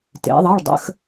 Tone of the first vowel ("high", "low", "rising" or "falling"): rising